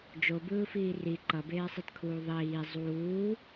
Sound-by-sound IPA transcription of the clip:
d͡ʒ o b ɯː f iː r i ǃ ʌ b eː sˤ i t kʰ uː ðˤ iː zˤ uː

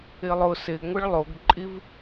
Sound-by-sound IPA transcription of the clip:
ɪ lˠ ʊ s ɪ ɡ ŋʷ ɪ ɭ lˠ o ɡ ǃʼ i v

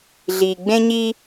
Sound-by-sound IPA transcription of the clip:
ɮ iː˧ ɡ͡b ẽ˥ ɲ iː˥

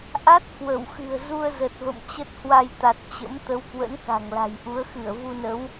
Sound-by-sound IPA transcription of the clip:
ʔ a˦˥ t̚ k w ə˧˩ w x ɨ̤˨˩ ə̯ z u˧ ə̯ z ə˨˩ t̚ v ə̰˧˨ m t͡ɕ ə˦˥ t̚ h w a˧ j t̪ a˨˩ t̚ t͡ɕ ə̰˧˥ m t̪ ə˨˦ w k w ə̰˧˥ n k a̤˨˩ ŋ l a̤˨˩ j ʔ u˨˦ ə̯ x ɨ˧˩ ə̯ v u˧ n ə˨˦ w

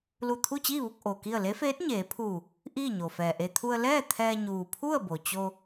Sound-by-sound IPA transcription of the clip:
l u˧˩ t̪ʰ u˥˨ t͡ɕ iː˥˨ ʋ u˥˨ k̚ ʔ o˩ k i˥˨ ə̯ l e˧˥ f eː˧˥ t̚ ɲ eː˩˧ pʰ uː˧˩ | ʔ iː˥˨ ɲ o˩ f ɛː˩ ʔ e˧ t̪ʰ u˧ ə̯ l ɛː˥˨ t̪ʰ ɛː˧ ɲ uː˩ pʰ u˥˨ ə̯ b o˩ t͡ɕ o˧

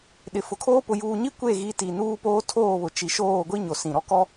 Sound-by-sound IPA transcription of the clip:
ɗ ɪ˨ f ʊ˨ kʰ oː˦ p ʊ˨ j uː˨ ɲ i˦ kʷ e˦˨ ɣ i˨˦ t i˨ n uː˦ p oː˦ tʰ oː˦˨ β ʊ˨ t͡ʃ i˨ ʃ oː˦˨ ɡʷ i˦ ɲ o˨ s ĩ˨ ɾ ɔ˦ k ɔ˦

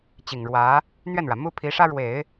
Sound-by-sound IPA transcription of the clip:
t͡ɕ i˨˩ ŋ ɻ w ä˧˥ | n̪ ɥ ɛ˥˩ n ɻ ä˩ m u˥ pʰ i˧˥ ʂ ä˥ ɻ w e˨˩˦ ɪ̯

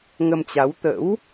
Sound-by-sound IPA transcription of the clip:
ŋ ə˧ m t͡ɕ a˨˦ w t̪ ə̰˧˥ w

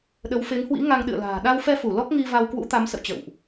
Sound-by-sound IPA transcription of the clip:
ɗ ə˨˦ w f e˨˦ ŋ h w ḭ˧˥ ŋ a˧ ŋ ɗ ɨ̰˧˨ ə̯ l a̤ː˨˩ ɗ a˧ w f ɛ˧ f u˧˩ l ɔ˦˥ k̚ ŋ i˧ v a˧ w k w ṵ˧˥ t̪ a˨˦ m s ə̰˧˨ w t͡ɕ ə̰˧˨ w ʔ

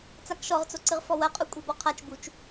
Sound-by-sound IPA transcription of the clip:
t͡s a k ʃ ɔ ʁ t͡s o ǀ ɨ ʁ f ɔ w ɐ qʼ u kʷʼ i b ɔ qʰ a t͡ʃ b u t͡ʃ

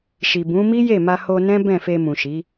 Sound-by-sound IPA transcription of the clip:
ʃ i˨ b ũ˨˦ m i˦ j e˦˨ m a˧ h o˧ n ɛ̃˦ b ɛ̃˦˨ f e˧ m ũ˨ ʃ i˨˦

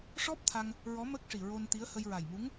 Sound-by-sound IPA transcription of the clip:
ʂ ɔ˦˥ p̚ t̪ʰ a˧ ŋ | ɹ ɔ˧˥ m ə˦˥ k̚ ʂ i˨˩ ɹ o˧ n t̪ i˧˥ ə̯ h ə˧ j ɹ a˨˩ j m u˧˥ ŋ

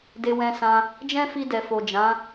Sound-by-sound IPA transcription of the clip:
d e˧ w ɛ̃˧ s ã˧ | d͡ʒ ɛ̃˦ f i˧ d ɛ˨ f o˨ d͡ʒ ã˨˦

